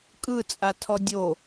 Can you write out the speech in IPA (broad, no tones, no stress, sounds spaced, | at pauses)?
kʼ ɯ t͡sʼ a tʰ ɔ dʲ o